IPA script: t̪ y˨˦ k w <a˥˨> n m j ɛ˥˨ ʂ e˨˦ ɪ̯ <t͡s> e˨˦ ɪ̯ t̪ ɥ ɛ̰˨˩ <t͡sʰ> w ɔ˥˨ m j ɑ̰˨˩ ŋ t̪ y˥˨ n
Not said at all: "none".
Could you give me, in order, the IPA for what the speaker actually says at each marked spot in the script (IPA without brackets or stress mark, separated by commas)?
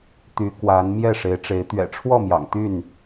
a˨˦, ʈ͡ʂ, ʈ͡ʂʰ